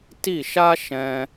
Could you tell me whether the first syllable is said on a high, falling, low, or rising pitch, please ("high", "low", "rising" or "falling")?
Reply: falling